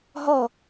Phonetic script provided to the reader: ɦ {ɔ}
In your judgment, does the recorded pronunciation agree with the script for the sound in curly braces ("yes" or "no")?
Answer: yes